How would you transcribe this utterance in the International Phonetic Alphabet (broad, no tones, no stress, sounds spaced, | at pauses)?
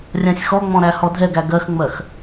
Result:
rʲ ã sʲ x ɔ ŋ͡m ɔ̃ ɾ æ h ɔ dʱ ɛ ɡ æ ɡ ɜ x ŋ͡m ɜ x